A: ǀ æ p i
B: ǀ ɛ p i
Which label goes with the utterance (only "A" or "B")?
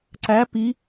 A